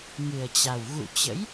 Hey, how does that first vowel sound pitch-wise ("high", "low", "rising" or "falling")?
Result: low